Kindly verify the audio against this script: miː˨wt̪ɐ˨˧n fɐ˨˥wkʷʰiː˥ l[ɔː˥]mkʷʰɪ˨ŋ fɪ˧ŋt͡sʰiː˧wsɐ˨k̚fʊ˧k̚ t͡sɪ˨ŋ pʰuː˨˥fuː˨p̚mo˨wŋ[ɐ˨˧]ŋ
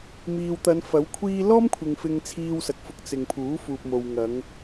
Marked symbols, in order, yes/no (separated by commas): yes, yes